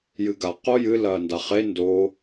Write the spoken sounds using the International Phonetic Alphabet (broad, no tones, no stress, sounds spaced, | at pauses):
j ɨ ɡ a q o j ɨ l ɐː n d a χ e n d o